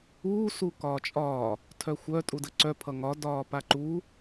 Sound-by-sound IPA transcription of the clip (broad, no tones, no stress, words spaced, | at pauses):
uː sukɒːt͡ʃʼɒː | tʰœxʷœ tʼudəǀœ pʰʌŋɒ dɒːpaǃuː